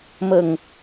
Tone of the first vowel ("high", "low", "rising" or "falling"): low